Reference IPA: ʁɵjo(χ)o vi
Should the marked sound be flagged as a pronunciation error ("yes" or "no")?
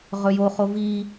no